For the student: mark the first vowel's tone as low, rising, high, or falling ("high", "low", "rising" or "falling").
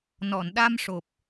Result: low